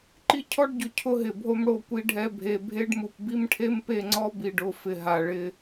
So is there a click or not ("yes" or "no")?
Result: yes